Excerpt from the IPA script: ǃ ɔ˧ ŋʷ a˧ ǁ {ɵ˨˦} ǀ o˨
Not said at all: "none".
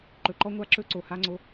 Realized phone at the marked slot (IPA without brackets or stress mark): ɵ˧